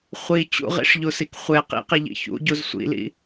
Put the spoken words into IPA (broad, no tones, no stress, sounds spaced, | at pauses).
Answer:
χʷ i t͡ɕ ṵ ʁ ḭ ʂ ʎ u s i k χʷ e q ḭ q i ʎ ḭ ç ṵ ɟ u z sʷ ḭ l ḭ